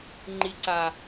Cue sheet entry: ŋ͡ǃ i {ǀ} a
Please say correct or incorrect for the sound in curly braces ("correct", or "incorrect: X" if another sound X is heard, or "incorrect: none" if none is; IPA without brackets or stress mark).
correct